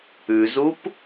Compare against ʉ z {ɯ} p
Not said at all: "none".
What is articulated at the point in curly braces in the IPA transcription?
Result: u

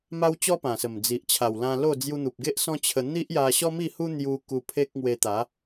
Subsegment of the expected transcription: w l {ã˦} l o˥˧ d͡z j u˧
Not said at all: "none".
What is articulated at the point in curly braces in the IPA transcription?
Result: ã˧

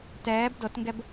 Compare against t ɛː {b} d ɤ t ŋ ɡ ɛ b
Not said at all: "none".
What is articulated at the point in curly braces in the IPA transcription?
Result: b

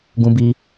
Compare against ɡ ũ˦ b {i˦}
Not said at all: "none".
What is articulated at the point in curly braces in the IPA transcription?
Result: i˦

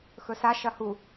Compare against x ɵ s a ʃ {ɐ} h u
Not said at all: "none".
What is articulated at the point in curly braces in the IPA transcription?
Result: ɐ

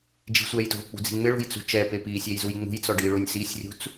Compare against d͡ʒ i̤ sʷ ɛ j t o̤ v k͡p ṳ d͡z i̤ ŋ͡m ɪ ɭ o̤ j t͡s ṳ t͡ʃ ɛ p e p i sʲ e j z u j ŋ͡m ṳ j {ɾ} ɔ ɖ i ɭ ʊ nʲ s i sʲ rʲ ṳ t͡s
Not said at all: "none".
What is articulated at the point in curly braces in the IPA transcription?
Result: t͡s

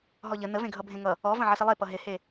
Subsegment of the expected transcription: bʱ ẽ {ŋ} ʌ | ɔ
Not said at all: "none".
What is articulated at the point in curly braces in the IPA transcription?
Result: ŋ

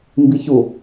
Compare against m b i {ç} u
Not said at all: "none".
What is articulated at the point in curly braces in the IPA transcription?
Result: ç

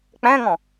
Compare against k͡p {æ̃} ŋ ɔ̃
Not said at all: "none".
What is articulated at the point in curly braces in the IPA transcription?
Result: æ̃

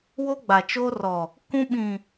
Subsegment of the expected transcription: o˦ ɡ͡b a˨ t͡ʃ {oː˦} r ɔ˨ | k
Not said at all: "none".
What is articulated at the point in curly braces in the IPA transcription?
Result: oː˦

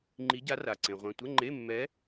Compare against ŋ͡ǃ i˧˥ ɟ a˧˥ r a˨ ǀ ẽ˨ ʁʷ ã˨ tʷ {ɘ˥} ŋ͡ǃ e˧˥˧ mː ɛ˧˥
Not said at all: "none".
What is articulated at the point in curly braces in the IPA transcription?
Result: ɘ˧˥˧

